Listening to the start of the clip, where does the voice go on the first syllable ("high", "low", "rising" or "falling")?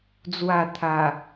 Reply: low